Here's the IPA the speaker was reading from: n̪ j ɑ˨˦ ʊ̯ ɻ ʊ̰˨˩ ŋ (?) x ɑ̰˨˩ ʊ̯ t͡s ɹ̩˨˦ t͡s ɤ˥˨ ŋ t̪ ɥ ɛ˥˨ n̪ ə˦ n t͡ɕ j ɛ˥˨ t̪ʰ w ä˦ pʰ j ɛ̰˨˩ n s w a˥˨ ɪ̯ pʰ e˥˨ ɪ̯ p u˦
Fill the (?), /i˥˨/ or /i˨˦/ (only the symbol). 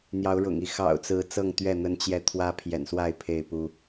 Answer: i˨˦